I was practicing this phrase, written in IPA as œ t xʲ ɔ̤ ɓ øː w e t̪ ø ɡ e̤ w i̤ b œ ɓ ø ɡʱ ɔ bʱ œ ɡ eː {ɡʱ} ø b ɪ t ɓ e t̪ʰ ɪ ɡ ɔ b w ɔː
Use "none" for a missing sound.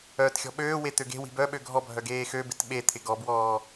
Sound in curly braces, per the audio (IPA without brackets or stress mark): x